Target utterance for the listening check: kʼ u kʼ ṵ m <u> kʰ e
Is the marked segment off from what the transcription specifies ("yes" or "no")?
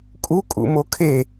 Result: yes